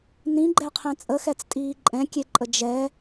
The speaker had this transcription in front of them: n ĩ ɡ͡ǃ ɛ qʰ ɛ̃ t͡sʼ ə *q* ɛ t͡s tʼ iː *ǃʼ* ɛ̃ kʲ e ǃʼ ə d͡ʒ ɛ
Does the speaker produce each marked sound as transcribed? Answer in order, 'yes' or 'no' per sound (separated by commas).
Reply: no, yes